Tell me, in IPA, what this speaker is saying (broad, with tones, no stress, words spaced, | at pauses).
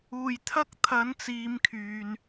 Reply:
uː˨˩jt̪ʰɐ˥k̚ t̪ʰɐ˨˥nt͡siː˨m kʰyː˨n